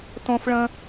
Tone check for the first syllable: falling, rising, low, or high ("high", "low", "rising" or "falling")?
high